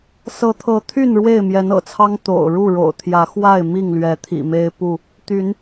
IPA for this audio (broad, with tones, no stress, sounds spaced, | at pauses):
s ɤ˨˦ t̪ʰ ɤ˨˦ t̪ʰ y˥˨ n ɻ w e˥˨ ɪ̯ m j ɛ˨˦ n ɤ̰˨˩ t͡sʰ ɑ˦ ŋ t̪ o̰˨˩ ʊ̯ ɻ u˥˨ ɻ o̰˨˩ ʊ̯ t̪ʰ j ä˨˦ x w a˥˨ ɪ̯ m i˥˨ ŋ l ɥ ɛ˨˦ t̪ʰ ḭ˨˩ m e˦ ɪ̯ p u˥˨ | t̪ y˨˦ n